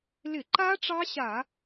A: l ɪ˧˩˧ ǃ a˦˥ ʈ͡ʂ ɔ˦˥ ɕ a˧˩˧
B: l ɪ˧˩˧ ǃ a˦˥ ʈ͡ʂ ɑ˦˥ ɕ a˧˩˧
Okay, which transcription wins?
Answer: B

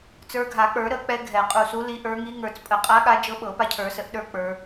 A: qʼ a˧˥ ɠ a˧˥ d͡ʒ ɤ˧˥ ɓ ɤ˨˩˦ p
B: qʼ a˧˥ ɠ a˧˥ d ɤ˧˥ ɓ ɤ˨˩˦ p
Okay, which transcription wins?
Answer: A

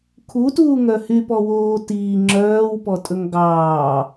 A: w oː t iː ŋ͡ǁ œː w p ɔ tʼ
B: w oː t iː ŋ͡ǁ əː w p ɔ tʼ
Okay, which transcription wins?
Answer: A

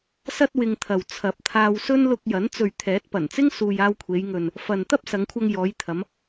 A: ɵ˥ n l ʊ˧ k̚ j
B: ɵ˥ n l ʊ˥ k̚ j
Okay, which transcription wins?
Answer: A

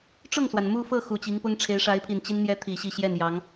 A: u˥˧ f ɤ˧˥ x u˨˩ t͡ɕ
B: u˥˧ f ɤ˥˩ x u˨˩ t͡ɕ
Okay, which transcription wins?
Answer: B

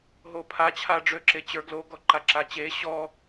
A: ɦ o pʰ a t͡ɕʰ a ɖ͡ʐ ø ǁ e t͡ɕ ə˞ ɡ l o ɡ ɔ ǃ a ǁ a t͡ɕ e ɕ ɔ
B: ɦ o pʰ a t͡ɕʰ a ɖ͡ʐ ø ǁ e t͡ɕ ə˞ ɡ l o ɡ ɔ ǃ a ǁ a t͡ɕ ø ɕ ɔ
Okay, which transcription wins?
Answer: A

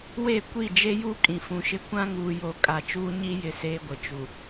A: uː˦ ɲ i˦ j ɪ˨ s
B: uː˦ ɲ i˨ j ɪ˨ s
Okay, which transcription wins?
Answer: A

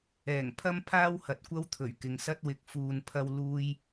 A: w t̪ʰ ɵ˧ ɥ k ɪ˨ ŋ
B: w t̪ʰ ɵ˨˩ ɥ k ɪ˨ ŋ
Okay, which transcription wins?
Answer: B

